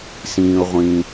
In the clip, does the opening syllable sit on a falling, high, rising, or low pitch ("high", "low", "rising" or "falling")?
low